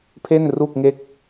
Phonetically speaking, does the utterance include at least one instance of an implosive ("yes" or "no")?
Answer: no